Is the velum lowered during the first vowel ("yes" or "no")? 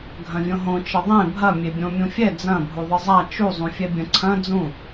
yes